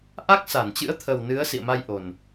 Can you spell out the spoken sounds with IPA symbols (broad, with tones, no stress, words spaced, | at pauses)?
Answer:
ʔa˦˥k̚sa˧˩nt͡ɕɨ̰˧˥ə̯t̪ʰə˨˩w nɨ˨˦ə̯ sḭ˧˨ə̯ma˧j ʔo˨˩n